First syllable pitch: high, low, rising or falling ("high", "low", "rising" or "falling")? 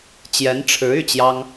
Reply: rising